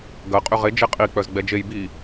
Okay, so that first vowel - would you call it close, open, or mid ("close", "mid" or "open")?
open